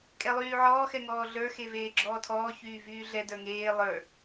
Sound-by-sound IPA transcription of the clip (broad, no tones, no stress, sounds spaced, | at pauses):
kʼ ɛ lˠ yː ʕ ɔː x ɛ ŋ ɔː ɮ ə˞ x e v eː ɡ͡ǁ ɔː tʰ ɔː ç yː v yː ɮ ɛ d ə˞ ŋ eː lˠ ə˞